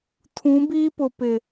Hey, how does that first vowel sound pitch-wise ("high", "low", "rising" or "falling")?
rising